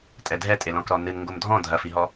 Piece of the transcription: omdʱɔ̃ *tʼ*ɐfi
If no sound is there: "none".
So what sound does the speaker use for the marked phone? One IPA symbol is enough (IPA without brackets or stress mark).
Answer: dʱ